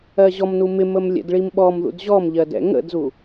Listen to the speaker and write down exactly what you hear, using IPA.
ɜ ʑ ɔ m n u m ɪ m ə m lʲ ɛ̰ d ɭ i m ɓ ɔ m ð ṵ d ʑ ɔ m ʎ ɜ d ɛ̰ ŋ ə̰ d z u

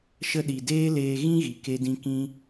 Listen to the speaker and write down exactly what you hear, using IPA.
ʃ ə˧ ɗ i˨ d eː˦ l eː˧ ɣ ĩ˦ ɣ i˨ k e˧ d ĩ˧ k ĩ˧

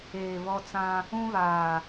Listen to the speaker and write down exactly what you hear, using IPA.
eː˨ β ɔ˦ t͡s ã˦ | ũ˦ β aː˨

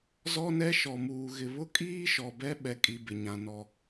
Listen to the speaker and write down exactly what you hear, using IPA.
z ɔ˦ n ɛ˦ ʃ ɔ˨ m uː˨ ɣ ɪ˨ β ʊ˦ kʼ iː˦ ʃ ɔ˨ b ɛ˦ ɓ ɛ˨ kʼ i˨ b ɪ˨ ɲ ã˨ n ɔ˨

